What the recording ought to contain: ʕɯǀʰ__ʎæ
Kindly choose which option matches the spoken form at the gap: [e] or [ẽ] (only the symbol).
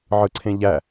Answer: ẽ